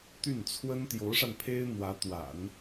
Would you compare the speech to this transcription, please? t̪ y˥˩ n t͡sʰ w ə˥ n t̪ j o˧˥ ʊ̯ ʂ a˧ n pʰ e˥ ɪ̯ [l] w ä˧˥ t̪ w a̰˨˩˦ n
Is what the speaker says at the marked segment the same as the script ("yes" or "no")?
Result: no